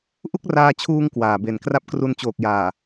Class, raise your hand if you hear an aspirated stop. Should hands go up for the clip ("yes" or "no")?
yes